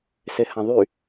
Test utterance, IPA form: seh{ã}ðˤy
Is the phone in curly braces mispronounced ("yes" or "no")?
no